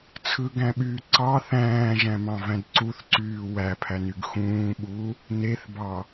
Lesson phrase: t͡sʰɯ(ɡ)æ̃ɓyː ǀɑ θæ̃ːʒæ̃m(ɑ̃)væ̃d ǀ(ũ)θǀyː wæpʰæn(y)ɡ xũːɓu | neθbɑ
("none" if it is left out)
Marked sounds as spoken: ɡ, ɑ̃, u, y

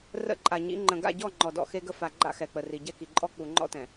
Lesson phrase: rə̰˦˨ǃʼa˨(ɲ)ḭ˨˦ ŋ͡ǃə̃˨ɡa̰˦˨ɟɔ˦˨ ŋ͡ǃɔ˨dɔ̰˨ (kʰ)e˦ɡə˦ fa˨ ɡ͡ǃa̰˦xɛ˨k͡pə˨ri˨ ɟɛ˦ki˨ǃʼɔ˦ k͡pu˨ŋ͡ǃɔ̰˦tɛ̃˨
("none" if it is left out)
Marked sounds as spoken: ɲ, x

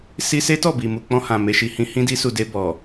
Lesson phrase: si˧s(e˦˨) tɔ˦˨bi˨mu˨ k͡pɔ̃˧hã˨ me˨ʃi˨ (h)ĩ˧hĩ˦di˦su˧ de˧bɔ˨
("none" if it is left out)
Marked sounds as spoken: e˦, h

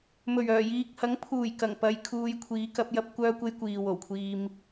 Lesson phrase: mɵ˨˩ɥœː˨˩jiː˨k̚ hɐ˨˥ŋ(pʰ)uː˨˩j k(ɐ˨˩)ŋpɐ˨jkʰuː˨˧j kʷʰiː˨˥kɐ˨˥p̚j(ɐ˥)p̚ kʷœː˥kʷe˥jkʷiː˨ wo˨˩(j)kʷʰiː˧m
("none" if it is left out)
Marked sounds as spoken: pʰ, ɐ˨˩, ɐ˥, w

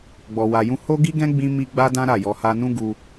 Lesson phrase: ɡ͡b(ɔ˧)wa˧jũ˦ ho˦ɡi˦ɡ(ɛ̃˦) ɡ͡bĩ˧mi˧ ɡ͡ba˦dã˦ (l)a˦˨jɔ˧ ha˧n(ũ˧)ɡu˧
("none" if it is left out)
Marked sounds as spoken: ɔ˧, ɛ̃˦, ɾ, ũ˦

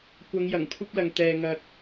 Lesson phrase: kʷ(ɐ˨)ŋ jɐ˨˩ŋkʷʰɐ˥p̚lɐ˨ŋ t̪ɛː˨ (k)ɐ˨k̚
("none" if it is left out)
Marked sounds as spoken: ɐ˨˧, ŋ

